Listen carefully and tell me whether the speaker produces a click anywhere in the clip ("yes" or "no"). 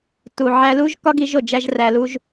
no